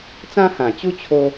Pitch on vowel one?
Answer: high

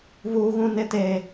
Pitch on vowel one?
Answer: high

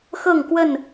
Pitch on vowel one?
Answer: falling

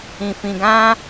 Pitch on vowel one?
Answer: low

